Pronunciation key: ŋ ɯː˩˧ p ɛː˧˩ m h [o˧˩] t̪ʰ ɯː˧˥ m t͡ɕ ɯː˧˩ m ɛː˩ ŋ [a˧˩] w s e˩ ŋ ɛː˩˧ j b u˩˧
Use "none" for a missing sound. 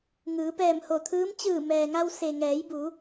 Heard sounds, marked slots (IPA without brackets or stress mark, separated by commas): o˧˩, a˧